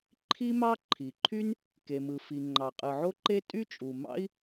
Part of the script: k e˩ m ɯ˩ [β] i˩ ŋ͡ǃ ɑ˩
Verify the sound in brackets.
incorrect: f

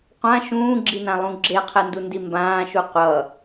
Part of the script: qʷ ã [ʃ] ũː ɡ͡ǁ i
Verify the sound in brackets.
correct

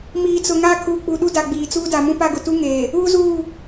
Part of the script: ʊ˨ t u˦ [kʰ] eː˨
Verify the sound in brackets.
incorrect: ŋ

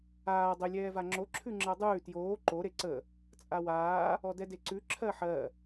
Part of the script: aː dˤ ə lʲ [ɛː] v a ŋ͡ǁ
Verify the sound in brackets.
correct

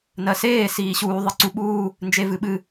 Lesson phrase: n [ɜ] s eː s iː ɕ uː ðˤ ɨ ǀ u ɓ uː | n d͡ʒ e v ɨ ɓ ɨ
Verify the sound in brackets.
correct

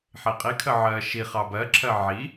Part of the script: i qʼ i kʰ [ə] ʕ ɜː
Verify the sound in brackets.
correct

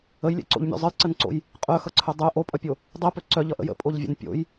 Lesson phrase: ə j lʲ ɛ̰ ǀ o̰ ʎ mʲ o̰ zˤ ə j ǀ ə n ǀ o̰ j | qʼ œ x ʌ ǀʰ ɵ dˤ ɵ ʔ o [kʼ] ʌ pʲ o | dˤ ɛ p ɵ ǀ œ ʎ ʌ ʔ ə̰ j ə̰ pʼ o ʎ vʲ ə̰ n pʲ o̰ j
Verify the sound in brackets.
incorrect: pʼ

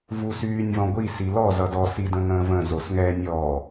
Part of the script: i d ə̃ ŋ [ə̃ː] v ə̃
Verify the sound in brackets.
correct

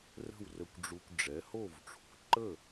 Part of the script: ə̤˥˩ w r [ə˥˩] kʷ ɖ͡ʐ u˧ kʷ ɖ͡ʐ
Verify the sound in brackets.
incorrect: ə˧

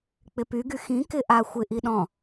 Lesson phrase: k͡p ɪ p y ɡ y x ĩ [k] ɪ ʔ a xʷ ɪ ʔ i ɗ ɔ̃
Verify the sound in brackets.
correct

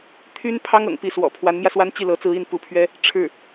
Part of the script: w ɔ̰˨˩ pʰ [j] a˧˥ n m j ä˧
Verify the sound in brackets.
incorrect: w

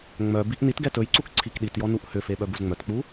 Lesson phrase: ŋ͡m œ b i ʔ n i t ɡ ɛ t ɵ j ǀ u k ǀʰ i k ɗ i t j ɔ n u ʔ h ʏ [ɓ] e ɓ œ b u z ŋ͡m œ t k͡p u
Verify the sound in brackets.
incorrect: f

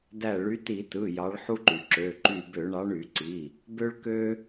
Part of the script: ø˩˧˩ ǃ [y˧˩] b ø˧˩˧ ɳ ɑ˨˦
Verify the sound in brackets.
correct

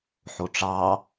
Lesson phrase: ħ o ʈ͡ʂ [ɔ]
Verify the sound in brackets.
incorrect: ɑ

